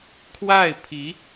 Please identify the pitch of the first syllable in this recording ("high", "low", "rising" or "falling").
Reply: falling